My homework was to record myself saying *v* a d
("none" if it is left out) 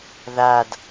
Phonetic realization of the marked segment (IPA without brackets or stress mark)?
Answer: ð